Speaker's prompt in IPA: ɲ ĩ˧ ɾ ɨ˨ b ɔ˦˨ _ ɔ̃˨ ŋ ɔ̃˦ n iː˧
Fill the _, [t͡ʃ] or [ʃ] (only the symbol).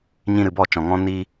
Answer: t͡ʃ